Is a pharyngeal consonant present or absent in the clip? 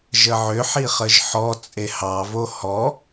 present